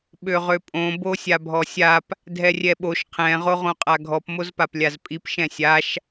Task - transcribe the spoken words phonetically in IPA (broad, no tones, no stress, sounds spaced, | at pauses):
ɓ ø ʁ ø pʼ õ b o sʲ a bʱ ɔ sʲ a p | dʱ ɛ rʲ ɛ ɓ o ʃ qʰ ɛ̃ ʁ o ʁ õ qʼ a ɡʱ ɔ p m o z p a p lʲ a z pʼ i p ʃ ɛ̃ sʲ a ʃ